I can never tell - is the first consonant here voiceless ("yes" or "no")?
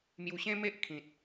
no